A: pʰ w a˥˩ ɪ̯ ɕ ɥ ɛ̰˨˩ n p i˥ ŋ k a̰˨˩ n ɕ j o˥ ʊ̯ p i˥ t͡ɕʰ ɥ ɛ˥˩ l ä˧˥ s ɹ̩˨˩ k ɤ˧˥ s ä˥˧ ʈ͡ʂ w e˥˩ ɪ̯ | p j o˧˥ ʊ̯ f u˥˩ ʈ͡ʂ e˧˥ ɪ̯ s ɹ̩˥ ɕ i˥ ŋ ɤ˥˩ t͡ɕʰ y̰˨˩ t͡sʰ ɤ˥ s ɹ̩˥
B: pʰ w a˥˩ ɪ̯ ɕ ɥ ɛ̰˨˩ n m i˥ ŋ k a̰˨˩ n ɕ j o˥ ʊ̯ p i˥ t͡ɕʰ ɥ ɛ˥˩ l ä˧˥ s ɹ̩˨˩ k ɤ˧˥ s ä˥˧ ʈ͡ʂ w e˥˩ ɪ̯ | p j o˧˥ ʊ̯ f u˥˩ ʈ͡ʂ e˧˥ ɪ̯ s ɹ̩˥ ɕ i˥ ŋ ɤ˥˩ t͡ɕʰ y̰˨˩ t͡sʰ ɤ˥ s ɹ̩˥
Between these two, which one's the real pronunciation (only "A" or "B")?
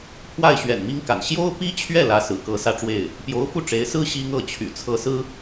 B